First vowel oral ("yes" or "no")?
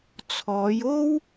yes